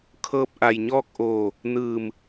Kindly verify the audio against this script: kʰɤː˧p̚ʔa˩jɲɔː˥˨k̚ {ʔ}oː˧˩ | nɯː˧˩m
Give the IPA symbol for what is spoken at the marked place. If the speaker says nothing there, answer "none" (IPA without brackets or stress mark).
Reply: ʔ